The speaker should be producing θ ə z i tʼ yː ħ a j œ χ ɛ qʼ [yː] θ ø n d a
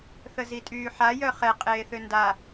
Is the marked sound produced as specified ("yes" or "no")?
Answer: no